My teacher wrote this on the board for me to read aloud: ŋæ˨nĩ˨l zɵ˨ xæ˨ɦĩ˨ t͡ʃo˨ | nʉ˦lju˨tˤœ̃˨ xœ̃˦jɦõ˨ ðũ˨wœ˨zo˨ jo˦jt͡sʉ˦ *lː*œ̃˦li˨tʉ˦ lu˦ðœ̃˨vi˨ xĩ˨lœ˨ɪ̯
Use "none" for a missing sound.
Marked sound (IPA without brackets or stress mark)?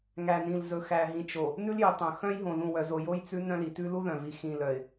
n